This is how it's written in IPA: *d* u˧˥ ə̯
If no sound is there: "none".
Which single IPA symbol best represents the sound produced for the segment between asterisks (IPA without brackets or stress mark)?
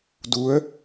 d